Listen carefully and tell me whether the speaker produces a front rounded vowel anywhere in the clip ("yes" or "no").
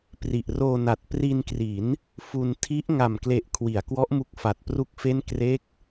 no